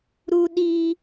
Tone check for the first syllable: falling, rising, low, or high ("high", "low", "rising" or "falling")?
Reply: high